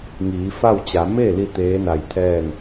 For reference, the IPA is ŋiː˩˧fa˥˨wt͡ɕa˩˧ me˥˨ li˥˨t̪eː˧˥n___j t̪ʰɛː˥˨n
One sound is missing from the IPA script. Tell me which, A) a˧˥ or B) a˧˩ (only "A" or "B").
B